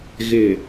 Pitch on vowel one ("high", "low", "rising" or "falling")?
low